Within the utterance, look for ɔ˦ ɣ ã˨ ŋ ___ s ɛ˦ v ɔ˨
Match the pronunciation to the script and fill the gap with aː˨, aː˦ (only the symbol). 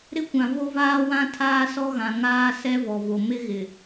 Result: aː˦